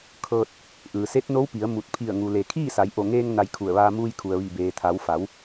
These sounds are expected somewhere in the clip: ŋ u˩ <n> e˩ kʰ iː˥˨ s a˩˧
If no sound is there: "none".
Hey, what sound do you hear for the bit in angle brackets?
l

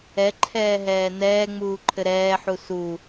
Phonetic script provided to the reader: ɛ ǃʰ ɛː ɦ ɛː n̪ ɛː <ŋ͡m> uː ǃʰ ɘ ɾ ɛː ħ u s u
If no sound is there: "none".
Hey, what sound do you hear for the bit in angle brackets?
ŋ͡m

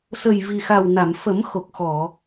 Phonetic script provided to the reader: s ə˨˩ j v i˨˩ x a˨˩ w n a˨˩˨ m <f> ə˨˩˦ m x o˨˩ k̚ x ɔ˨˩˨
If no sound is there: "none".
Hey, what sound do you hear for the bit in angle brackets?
f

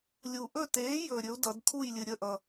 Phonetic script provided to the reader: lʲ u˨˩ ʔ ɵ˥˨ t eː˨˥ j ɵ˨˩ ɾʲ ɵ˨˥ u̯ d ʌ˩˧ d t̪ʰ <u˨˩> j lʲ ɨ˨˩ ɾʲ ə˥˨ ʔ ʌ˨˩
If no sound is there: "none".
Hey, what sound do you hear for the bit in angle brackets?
u˥˨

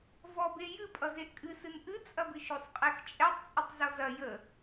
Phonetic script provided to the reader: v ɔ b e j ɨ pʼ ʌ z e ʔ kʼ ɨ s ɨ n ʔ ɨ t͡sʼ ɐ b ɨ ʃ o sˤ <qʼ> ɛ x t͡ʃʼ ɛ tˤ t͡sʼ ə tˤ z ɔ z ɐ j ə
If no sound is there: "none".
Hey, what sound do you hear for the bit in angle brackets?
qʼ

